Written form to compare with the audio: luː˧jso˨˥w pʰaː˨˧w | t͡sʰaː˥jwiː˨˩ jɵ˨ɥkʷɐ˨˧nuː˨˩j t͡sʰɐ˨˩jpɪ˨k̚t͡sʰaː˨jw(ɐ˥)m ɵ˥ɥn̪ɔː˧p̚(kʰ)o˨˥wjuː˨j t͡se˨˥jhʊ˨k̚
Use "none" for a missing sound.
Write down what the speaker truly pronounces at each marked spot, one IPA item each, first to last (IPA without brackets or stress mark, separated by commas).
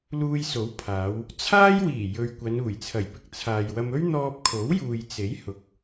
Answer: ɐ˧, kʰ